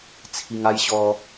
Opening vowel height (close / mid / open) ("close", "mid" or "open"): close